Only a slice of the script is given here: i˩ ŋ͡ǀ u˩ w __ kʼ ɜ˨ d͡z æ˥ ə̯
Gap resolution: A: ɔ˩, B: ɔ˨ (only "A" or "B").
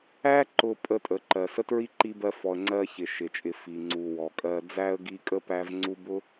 A